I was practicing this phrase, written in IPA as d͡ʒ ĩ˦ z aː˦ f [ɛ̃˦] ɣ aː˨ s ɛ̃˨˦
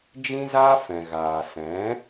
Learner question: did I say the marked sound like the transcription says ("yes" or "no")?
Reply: no